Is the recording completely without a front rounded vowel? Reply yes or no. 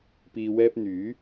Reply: no